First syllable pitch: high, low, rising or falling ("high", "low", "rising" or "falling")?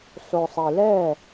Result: low